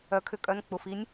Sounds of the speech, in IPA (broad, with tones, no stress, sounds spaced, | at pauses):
œ˩˥ kʰ ʏ˩˧ kʼ œ˩˧˩ n k͡p ʊ˩˧˩ f i˦˥ nʲ